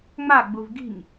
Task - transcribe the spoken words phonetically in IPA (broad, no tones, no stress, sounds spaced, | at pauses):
ŋ͡m a ɡ͡b u v ɡ i̤ ɲ